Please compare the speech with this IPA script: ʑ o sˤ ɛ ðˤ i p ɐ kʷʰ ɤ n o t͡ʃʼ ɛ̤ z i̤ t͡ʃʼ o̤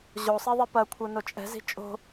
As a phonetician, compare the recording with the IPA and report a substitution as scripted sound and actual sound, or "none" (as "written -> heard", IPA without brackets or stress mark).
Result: none